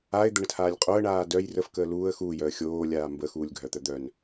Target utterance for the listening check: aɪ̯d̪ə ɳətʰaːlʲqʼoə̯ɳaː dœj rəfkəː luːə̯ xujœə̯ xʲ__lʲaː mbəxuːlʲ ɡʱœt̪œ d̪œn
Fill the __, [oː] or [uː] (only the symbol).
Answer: oː